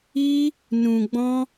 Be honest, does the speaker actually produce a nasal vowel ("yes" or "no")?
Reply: yes